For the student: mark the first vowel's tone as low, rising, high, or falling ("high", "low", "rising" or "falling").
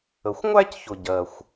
low